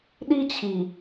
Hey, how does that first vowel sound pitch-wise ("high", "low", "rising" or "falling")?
high